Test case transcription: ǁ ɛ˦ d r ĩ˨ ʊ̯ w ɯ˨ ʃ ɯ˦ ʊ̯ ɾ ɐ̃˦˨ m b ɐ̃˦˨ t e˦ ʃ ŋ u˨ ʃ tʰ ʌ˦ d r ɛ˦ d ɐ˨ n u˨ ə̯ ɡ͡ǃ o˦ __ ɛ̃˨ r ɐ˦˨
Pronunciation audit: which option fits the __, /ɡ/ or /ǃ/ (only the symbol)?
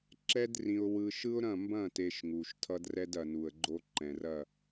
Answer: ǃ